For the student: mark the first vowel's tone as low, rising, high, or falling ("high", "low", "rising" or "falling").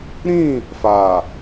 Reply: falling